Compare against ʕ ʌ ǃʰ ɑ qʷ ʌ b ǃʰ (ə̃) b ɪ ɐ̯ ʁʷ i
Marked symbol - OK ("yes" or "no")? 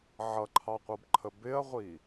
no